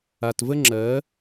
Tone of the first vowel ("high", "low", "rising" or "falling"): low